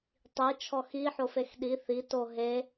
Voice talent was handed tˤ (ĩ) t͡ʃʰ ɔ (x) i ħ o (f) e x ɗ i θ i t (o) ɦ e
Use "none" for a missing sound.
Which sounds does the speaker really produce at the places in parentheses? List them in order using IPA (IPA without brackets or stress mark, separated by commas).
i, x, f, o